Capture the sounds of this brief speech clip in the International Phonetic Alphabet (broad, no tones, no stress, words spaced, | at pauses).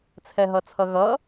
t͡sʰɛɦʌt͡sʰʌɣʌ